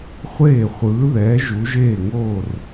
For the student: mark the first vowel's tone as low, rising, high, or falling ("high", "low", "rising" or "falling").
falling